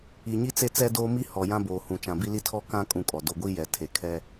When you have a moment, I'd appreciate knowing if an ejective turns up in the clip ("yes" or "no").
yes